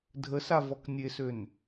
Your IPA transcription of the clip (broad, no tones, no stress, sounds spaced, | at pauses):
dʱ ə s a v ɔ k nʲ e s ø n